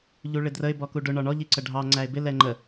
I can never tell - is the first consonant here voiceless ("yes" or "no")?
no